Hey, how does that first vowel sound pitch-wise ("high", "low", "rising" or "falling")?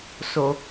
low